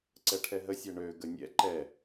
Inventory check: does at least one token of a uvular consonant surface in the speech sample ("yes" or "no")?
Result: no